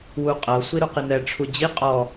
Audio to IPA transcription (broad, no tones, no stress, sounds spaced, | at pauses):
w u qʼ ɤ sʷ i ɾ u q i n̪ ɛ ʈ͡ʂʰ u d͡ʑ i qʼ ɔ